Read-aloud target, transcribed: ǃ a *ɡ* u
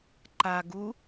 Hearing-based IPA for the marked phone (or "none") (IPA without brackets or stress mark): ɡ